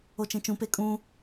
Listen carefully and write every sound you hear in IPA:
ot͡ʃẽt͡ʃũ pekʼũ

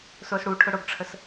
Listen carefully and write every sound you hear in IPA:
sʊːsɽuʈʰʊ ɽʊɡʈ͡ʂʰəs

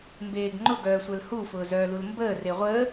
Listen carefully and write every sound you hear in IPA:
mbeːɡŋ͡ǃʊɡœː sʷœlhufʊː zœːlulmbəːre ʁʷəː

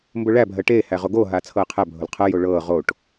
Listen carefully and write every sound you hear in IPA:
mbʊɭæ bʱɜʈeː hæʁoɡo ɦaːt͡sʰɤːqʰæ bʱʊlqʰɤ joɭɤː ʁoʈ

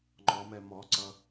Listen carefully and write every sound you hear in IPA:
ŋ͡ǃɔmɛ mɔǀʌ

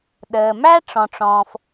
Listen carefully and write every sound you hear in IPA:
ɗəː˩mæ˥ ʈ͡ʂɔ̃˩ʈ͡ʂɔ̃ː˩f

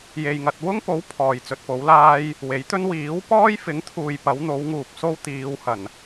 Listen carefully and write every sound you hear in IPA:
je˨jŋɐ˨t̚ wʊ˥ŋpo˨˥w pʰɔː˨jt͡sɵ˧t̚po˨˥wlaː˥j | we˨˥jt̪ɵ˥n wiː˨˥wpɔː˥jfɪ˨˥ŋt̪ʰuː˨j pɐ˨˥wn̪o˨˥wŋuː˨p̚so˥w t̪iː˨˧w hɐ˨˩n

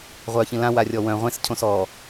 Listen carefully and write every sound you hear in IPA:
ʁʷœːçĩlã warʲɔwœ̃ ʁʷẽs cʰõsɔː

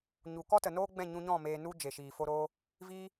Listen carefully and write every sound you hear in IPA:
ɲu˨kɔ˦ tə˨noː˦ɡ͡bɛ̃˦˨ ɲũ˧ɲɔ̃˦˨ meː˨nu˧ d͡ʒe˨ʃiː˨ fo˧ɾo˧ | viː˧

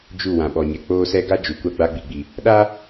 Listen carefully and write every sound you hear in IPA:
d͡ʒu˦˨ wã˨ɓɔ˨ɲɛ˨ k͡poː˦sɛ˦ ɡa˦ d͡ʒu˨kʷa˦ ɡ͡ba˦ɡ͡bi˨ɡ͡bi˨ | ɗa˦

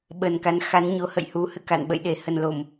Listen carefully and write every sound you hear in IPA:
ɓə˨˩nka˨˦nxa˨˦n ɲo˨˦hə̰˧˨jhu˨˦ hɨ̰˧˨ka̰˧˨nɓə̰˧˨j ɗe˨˩ hə˨˩nlo˧˩˨m

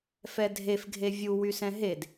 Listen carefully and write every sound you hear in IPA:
fɛdʱefɡʱe vʲuwysɛ̃ ɦed

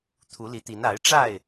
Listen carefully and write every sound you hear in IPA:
t̪ʰu˨˦li˨˦t̪i˨˦n a˨˦ɪ̯ʈ͡ʂa˥˨ɪ̯

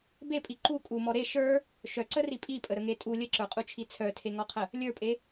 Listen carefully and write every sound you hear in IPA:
bepʼi ǃu kʼumɔ ɾe ʃə˞ | ʃœǀəri pʼipʼəɾəŋe tʼu lʲəǁə˞qʼut͡ʃʰi t͡sʰœtʰeŋɔqʰə | lʲə˞pʼe

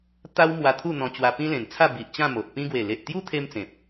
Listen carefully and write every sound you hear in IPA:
t̪a˦w mwa˧t̪ʰu˥˧n̪ɔ̃˧ t͡ɕwa˧pĩ˦lẽ˨˩nt͡sʰa˥˧ bi˨ʔt͡ɕã˥˧ mo˨ʔpĩ˦ ɡwe˨˩le˨ʔt̪ju˦t̪ʰe˧m t͡sẽ˨p̚

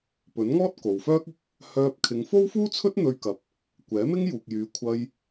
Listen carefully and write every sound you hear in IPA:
pɵ˨˥nŋɔː˥t̚ ko˨wfœː˥k̚ɪ˥k̚ | hœː˧p̚kʰɪ˨˧ŋ fo˥wfuː˥t͡sʰɵ˥t̚ n̪ɵ˧ɥkɐ˨p̚ | kʷɛː˨˥mɪ˥ŋjuː˨k̚jyː˨˧ kʷʰɐ˧j

